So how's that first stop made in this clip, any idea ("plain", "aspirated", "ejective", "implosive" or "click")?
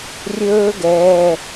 plain